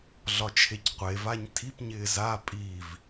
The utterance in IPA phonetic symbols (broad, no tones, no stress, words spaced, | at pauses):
ɮɒt͡ʃʰecqʷevaɲ tʰipɲɪː za pʼiv